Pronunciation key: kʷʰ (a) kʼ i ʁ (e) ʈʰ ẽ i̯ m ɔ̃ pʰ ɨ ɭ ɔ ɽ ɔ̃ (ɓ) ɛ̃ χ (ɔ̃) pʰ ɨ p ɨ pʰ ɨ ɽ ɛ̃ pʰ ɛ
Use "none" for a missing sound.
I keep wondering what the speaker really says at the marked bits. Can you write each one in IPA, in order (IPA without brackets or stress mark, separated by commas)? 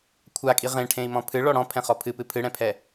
a, ẽ, pʰ, ɔ